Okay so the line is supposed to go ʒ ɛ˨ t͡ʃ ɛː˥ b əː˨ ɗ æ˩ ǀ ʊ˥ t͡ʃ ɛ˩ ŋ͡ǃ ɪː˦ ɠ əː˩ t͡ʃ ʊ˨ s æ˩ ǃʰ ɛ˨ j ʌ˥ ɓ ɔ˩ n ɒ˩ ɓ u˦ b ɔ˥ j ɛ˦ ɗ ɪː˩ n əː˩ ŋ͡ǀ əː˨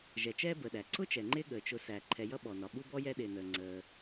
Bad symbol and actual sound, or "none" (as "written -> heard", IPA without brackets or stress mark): none